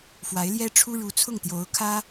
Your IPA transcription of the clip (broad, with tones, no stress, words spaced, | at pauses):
fwa˧˥ɪ̯ljɛ˥ʈ͡ʂʰu˥ ɻu˧˥t͡sʰʊ˥˩ŋt̪jo˧˥ʊ̯ kʰä˥